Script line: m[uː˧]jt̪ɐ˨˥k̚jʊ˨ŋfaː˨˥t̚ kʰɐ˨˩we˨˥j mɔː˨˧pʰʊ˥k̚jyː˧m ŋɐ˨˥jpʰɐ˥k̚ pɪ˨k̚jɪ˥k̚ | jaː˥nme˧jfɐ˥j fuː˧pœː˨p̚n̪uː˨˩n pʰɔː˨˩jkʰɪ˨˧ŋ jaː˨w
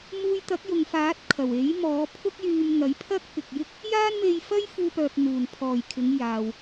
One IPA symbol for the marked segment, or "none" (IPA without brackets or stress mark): uː˧